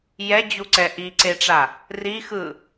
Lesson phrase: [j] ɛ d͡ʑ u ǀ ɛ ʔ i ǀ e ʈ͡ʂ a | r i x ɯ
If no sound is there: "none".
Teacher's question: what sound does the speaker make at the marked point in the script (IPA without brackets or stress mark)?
j